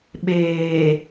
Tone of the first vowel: low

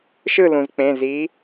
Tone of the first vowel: falling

